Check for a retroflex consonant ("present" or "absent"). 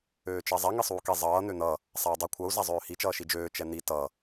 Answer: absent